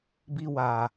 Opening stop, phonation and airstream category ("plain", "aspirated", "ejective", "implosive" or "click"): plain